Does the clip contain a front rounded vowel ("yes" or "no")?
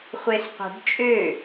yes